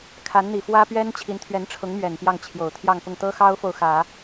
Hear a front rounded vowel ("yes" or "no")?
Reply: no